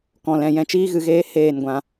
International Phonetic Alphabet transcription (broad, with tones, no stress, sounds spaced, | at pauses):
k ɔ̃˨ l ɛ̃˨ j ɛ̃˧ t͡ʃ iː˦ ɣ ɨ˨ ɣ eː˦ h eː˦˨ n ɡʷ ã˧